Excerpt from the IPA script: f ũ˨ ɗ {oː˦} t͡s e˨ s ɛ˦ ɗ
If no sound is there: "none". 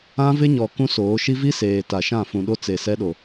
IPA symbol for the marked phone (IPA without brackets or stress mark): o˦